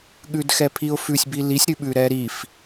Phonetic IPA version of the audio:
ɠʉdxɛpʰiʊ̯fʉsʲ bilisʲ ɾʉɓʉɾɛɾif

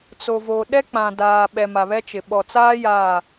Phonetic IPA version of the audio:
t͡so˨vo˨ɗɛ˦ k͡pã˨daː˨ɓɛ˨ma˨ βɛ˦t͡ʃɪ˨ ɓɔ˨t͡saː˦ ja˦˨

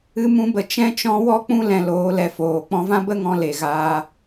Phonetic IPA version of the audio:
ɨ˧mũ˧bə˨ t͡ʃɛ̃˦t͡ʃɔ̃˦ wɔ˦k͡pũ˦ lɛ̃˧loː˨˦lɛ˨ foː˨ k͡pɔ̃˧vã˦bə˦ŋɔ̃˧ le˨ɣaː˧

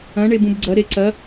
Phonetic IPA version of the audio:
ɐ̃ ɳebũbɡ͡ǀɐ ɾeǀɐ

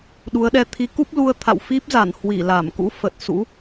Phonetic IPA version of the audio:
ɗu˨˦ə̯ɗɛ˧ t̪ʰi˨˦ku˦˥p̚lu˧ə̯ t̪ʰa̰˧˨wfi˦˥p̚za˧˩n hwi˧˩ la˧˩mkṵ˧˥ fə˨˩t̚sṵ˧˥

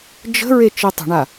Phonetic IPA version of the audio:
d͡ʒə̤ ɹet͡ʃitˤə̤ɳa

